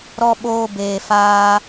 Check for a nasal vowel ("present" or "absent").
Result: absent